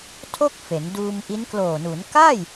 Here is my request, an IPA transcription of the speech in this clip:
tʰ o˥˩ k̚ f e˩˦ n d uː˧ m ʔ i˦˥ n k l oː˨˩ n u˩˦ n k a˥˩ j

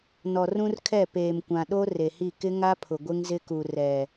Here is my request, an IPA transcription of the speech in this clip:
n ɔ˨ r ũ˦ r kʰ ɛ˦˨ p eː˨ m kʷ ã˨ ɗ o˦ r e˨ h i˦˨ k ɪ˦ ŋ a˦ pʰ ʊ˨ ɡʷ ɪ˦ ŋ z ɪ˦ k u˨ r ɛ˨

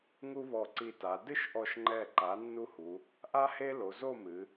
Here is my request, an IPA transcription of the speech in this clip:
ŋ u˦ β ɔ˧˩ ǀ i˧˩ t a˩˧ d ɨ˥˨ ʃ ʔ ɔ˧˩ ʃ ŋ͡ǃ ɛ˧˩ ǃ a˩˥ nː u˦ h u˩˧ | ʔ a˦ h e˦ l o˩˧ z o˥˨ m ɨ˩˧

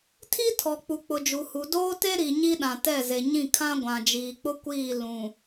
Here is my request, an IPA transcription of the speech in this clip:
tʰ i˦ tʰ ɔ˨ k͡p u˨ k͡p ʊ˨ d͡ʒ u˨ h u˨ d oː˦ t e˦ ɾ i˨ ɲ i˦ ɗ ã˨ t ɛ˦˨ z e˨ ɲ ĩ˦˨ kʰ ã˦ ɡʷ ã˨ d͡ʒ iː˨ k͡p ʊ˦ kʷ iː˦˨ l ũ˨

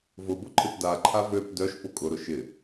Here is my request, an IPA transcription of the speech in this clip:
v ʊ b ʊ ǃʰ ɪ p d a ǃʰ a v ø p d œ ʃ p ʊ kʼ ʊ ɾ ʊ ʃ ɪ

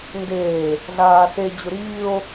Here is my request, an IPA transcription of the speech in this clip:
n d eː | ɮ aː s e d͡ʑ ʊ ɾ iː o̯

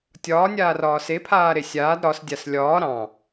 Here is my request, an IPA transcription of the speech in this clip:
tʲ ɒː nʲ aː r ɒː s e pʰ aː ɾ e sʲ aː d ɾ ɒ s dʲ a s lʲ ɒː ɾ ɑ̃

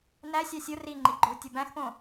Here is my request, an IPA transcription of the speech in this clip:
n æ sʲ ɑ sʲ o r i ŋ͡ǃ i ɡ͡ǃ ɵ w tʲ o b æ̃ x p õ

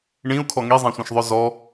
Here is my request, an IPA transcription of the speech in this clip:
ɳ ĩ u̯ kʰ ɔ ŋ i zˤ ɛ̃ sʷ ɛ̃ ʃ ðˤ œ z ɔ

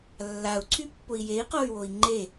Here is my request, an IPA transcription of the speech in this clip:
lː a u̯ ǀʰ y pː ʊ i̯ j e i̯ q o y̯ w o i̯ ŋ͡ǃ e

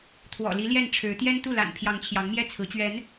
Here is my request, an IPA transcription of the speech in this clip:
t̪ʰ w ɔ̰˨˩ l i˧˥ l j ɛ˥˩ n ʈ͡ʂʰ ɻ̩˧˥ t̪ j ɛ˥ n t̪ u˥˩ l a̰˨˩ n pʰ j ɑ˧˥ ŋ t͡ɕʰ j ɑ˧˥ ŋ m j ɛ˥˩ t͡sʰ ɹ̩˧˥ t͡ɕ ɥ ɛ˧˥ n

